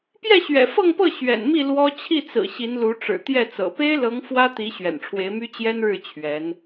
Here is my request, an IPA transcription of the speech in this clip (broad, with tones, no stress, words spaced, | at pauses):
pjɛ˥˩ɕɥɛ̰˨˩fɤ˥˧ŋpɤ˥˩ ɕɥɛ̰˨˩nmi˥˩ lwɔ˥ t͡ɕʰi˥˩t͡sɹ̩˨˩ ɕi˧˥nlu˧˥ʈ͡ʂɻ̩˨˩ t̪jɛ˥˩t͡sɤ̰˨˩ pe˥ɪ̯lɤ˧˥ŋ fwä˥t̪i˧˥ ɕɥɛ̰˨˩nʈ͡ʂʰwe˧˥ɪ̯my˥ t͡ɕjɛ˥nɻɻ̩˥˩ t͡ɕʰɥɛ˧˥n